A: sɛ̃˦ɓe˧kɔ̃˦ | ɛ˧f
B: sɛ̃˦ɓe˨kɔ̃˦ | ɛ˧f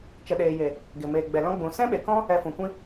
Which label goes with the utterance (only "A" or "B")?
B